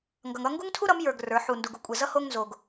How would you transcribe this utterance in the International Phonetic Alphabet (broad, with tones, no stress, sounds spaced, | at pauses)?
ŋ ɡ ʌ˧ ŋ ʌ˥ ŋ ɡ u˥ ŋ tʰ u˥ ɾ ʌ˨˥ m j ə˞˧ ɡ r ə˞˨˥ ħ u˧ n d u˧ ɡ u˨˥ kʷʼ ɛ˧ z ʌ˥ h o˥ ŋ n z o˧ ɡ